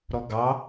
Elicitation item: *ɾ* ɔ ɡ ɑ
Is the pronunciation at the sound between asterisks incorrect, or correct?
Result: correct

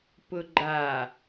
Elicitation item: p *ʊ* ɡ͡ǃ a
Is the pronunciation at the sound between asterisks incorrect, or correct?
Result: correct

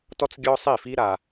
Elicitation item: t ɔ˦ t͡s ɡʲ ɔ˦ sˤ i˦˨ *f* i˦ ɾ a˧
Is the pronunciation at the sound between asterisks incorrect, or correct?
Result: correct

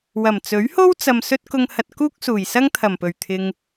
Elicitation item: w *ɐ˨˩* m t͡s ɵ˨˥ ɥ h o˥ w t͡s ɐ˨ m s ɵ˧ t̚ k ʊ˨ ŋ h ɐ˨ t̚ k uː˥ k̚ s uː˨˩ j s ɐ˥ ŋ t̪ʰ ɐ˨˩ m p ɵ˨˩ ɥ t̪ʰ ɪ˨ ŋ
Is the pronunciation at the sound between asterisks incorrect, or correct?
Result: correct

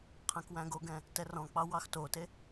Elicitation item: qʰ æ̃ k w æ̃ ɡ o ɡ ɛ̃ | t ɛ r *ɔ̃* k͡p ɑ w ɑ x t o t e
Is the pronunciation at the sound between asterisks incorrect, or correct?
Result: correct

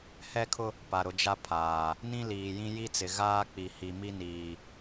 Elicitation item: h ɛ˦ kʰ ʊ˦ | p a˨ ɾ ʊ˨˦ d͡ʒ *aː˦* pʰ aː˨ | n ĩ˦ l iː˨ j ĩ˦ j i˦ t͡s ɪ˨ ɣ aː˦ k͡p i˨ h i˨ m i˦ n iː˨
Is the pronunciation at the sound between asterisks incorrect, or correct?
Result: incorrect: a˦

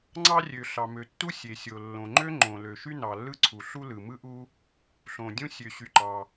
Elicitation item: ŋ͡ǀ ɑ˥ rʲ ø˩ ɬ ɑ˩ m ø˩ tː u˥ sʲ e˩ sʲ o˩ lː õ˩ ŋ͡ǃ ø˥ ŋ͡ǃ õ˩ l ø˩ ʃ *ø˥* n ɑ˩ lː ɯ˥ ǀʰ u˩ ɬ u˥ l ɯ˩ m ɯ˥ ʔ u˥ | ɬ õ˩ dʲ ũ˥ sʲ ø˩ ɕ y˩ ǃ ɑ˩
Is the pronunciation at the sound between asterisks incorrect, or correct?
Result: incorrect: y˥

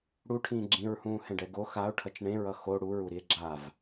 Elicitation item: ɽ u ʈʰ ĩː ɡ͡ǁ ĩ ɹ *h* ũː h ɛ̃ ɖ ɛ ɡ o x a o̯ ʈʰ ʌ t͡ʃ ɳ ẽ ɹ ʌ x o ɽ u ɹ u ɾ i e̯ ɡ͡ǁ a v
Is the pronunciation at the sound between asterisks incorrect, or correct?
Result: correct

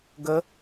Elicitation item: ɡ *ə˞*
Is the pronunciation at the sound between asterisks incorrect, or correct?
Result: incorrect: ə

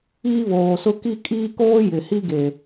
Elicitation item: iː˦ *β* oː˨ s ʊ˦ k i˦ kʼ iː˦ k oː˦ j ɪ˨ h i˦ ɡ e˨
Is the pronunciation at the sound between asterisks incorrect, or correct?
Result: correct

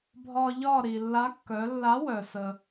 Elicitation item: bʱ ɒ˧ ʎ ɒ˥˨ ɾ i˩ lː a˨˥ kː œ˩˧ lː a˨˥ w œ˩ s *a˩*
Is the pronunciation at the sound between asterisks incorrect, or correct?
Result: incorrect: ə˩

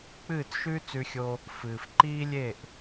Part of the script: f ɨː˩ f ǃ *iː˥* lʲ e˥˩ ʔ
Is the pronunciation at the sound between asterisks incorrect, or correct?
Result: correct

